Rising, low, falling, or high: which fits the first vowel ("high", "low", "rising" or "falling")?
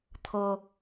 high